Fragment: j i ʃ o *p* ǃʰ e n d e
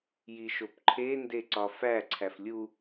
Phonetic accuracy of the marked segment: correct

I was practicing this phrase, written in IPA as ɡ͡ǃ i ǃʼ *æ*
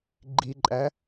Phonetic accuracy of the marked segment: correct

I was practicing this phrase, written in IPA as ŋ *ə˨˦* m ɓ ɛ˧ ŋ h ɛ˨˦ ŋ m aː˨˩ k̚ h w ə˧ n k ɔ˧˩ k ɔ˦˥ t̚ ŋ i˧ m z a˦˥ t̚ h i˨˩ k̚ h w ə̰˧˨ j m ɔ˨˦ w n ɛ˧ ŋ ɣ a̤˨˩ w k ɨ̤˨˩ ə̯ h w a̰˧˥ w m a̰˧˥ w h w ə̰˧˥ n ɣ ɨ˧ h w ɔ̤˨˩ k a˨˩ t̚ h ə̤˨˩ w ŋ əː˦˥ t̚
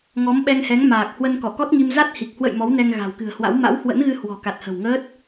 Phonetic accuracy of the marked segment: incorrect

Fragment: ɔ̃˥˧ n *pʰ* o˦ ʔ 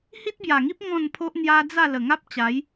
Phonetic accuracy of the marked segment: correct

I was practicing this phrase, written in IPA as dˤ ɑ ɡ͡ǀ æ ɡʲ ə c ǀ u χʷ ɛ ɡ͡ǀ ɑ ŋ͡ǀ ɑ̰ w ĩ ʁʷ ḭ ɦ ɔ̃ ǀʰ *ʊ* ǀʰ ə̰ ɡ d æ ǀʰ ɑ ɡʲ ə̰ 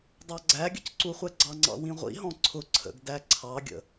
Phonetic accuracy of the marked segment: correct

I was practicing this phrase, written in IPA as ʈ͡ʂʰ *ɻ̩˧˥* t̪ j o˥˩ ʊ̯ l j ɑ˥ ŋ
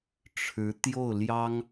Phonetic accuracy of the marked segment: correct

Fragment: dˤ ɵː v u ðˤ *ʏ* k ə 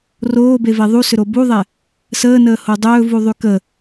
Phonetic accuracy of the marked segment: incorrect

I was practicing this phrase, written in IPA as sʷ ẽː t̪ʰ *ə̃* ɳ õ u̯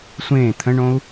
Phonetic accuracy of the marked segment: correct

